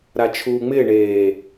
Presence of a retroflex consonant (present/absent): present